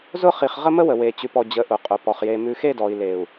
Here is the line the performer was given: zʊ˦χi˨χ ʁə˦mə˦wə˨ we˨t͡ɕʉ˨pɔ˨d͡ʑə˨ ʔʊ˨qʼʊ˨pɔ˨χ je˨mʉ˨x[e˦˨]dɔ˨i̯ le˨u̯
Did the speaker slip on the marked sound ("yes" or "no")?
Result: no